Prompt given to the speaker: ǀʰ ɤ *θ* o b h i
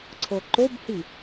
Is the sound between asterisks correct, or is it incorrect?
incorrect